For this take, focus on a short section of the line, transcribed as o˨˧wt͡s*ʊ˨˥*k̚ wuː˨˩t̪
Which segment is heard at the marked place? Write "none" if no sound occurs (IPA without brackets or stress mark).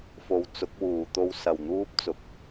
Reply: ʊ˨˥